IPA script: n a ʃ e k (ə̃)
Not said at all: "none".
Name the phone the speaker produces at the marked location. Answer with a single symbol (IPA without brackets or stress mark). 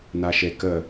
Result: ə